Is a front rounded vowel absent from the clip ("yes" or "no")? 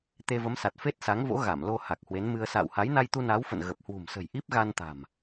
yes